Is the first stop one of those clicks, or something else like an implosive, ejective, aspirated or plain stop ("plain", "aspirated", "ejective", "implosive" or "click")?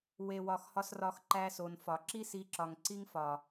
click